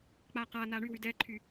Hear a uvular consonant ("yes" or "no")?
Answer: yes